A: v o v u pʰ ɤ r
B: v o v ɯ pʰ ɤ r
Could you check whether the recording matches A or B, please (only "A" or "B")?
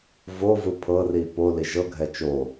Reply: B